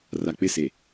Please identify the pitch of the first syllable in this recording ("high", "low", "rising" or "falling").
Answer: low